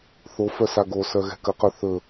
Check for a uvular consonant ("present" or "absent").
present